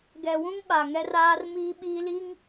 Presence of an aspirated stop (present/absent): absent